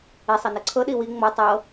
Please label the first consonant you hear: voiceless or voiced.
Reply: voiceless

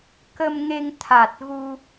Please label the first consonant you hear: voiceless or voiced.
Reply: voiceless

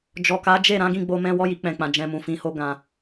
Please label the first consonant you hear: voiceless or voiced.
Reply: voiced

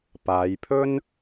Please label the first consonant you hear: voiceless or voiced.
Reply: voiceless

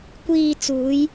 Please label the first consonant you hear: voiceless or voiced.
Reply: voiceless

